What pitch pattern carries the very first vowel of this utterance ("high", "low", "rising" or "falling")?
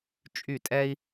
falling